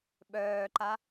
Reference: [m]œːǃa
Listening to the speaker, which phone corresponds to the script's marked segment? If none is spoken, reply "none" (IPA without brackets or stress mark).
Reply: ɓ